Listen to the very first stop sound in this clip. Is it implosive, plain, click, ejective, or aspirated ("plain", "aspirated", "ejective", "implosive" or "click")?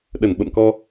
implosive